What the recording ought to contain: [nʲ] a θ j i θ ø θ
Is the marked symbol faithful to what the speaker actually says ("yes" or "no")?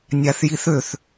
yes